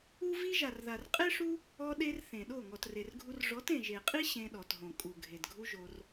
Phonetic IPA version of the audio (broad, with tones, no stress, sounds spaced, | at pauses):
u˦ v i˦ ʒ a˨ r ð a˨ r qʼ e˦ ʂ u˦ | ɔ˧ ɗ e˧ r θ ẽ˨ ɗ o˦˨ ŋ ɔ˨ t r e˨ r ɡʱ u˧ r ʐ ɔ˨˦ t ẽ˨ ʒ e˨ qʼ i˦ ɕ ẽ˧ ɗ ɔ˨ t ɦ õ˨ kʼ u˨ ɡʱ e˨ d ɡʱ u˦ ʒ o˧ r